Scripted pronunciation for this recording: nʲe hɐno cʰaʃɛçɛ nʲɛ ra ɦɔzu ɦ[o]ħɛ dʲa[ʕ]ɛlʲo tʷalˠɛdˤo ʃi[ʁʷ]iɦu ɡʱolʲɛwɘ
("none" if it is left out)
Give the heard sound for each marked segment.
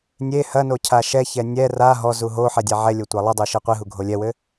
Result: o, ʕ, qʷ

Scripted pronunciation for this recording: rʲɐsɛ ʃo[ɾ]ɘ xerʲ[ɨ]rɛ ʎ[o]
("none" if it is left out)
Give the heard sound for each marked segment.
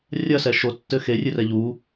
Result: tː, ɨ, u

